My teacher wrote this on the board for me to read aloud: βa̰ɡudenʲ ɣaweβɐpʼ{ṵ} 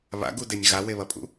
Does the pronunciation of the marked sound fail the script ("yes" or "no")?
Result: no